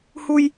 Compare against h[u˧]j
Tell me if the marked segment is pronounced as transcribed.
yes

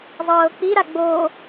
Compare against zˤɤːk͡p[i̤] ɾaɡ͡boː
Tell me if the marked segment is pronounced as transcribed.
no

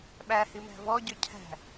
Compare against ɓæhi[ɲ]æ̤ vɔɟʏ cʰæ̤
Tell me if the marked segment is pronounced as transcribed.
no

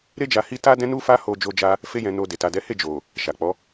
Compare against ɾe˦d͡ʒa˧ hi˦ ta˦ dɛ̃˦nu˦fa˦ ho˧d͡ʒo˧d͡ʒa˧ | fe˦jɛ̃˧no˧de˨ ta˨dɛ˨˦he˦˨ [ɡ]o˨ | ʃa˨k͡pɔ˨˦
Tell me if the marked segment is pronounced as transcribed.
no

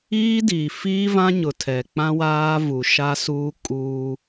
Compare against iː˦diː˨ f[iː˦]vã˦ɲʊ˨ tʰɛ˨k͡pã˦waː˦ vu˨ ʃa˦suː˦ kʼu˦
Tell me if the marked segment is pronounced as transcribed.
yes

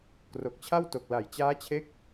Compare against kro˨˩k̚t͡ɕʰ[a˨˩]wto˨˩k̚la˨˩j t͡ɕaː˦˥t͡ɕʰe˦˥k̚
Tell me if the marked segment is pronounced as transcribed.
no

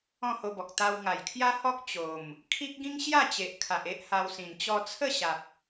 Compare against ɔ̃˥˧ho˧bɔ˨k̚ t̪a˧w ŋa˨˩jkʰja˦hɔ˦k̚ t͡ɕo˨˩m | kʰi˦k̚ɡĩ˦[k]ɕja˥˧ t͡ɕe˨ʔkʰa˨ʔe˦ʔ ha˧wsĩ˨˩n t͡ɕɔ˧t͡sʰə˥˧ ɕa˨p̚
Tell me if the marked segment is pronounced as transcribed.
no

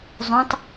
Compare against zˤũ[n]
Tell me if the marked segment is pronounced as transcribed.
no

